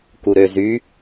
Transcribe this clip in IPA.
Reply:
k u ɾ ø z y

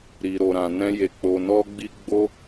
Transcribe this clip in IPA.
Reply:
ɾ i˨ ɾ o˨ ɾ ã˨ n ɛ̃˧ j e˨ k͡p o˨ n ɔ˧ ɡ͡b i˧ ɡ͡b o˧

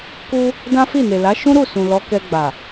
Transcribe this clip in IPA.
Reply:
k u˦ | d ã˦ f i˦˨ n e˨ l a˨˦ ʃ ũ˦ ɾ u˦˨ s ũ˨ l ɔ˨˦ k ɛ˧ ɡ͡b a˨

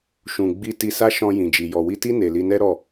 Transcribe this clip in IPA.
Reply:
ʃ ũ˨ ɡ͡b i˧ t i˧ s a˦ ʃ ɔ̃˧ j ĩ˨ d͡ʒ i˨ j ɔ˨ w i˧ t i˦ n e˧ l i˧ n ɛ˦ ɾ ɔ˦˨

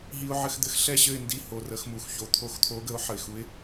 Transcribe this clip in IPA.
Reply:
ɦ i˦ ʊ̯ ʕ ɘ˦ x d̪ ɘ˦ x ɬ ɛ˥˨ ɕ ɘ˥˨ ɪ̯ n d i˨˥ h o˩˧˩ r ə˨˥ x m u˩ x ç o˨˥ t̪ʰ o˨˥ x t̪ʰ o˨˥ ɡ ə˨˥ ʊ̯ ħ ə˩ ɪ̯ x u˨˥ ɪ̯

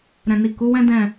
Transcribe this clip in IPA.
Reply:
ɾ ɛ̃˨ n i˨ k u˨˦ w ɛ̃˦ d ɛ̃˦˨

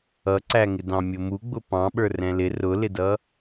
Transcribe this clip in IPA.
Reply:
ʌ ǀ æ ŋ ɪ d ɑ̃ mʲ ʊ m u ɡ͡b ʊ p ɑ̃ ɓ ə˞ r ɛ̃ l ɪ r ʊ l ɪ d ʌ

